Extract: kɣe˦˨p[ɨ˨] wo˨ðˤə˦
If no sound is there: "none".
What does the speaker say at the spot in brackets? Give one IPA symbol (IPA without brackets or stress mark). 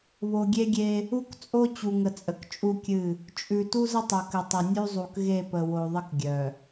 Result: ə˨